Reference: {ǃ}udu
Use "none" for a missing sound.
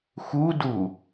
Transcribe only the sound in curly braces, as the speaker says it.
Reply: x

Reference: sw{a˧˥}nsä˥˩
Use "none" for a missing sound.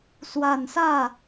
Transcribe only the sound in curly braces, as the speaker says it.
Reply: a˨˩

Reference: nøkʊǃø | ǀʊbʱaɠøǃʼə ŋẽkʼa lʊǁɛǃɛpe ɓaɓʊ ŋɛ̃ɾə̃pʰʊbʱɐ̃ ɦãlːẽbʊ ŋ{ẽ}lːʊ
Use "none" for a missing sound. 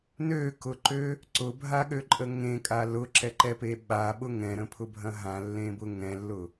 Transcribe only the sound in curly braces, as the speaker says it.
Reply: ɛ̃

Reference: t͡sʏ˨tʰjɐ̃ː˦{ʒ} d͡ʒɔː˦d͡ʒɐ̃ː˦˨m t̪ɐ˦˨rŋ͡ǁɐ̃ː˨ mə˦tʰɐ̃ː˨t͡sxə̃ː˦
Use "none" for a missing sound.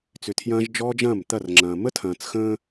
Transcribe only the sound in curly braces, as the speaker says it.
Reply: ʒ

